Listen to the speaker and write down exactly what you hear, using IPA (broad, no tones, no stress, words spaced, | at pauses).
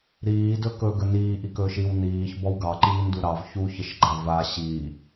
ɾiːdɵ kɵɡə niːʔikɵːʃ iw niːçbɔw ɡɑǃiːndu ɾɑv çuçəʃɡ͡ǃa va ɕi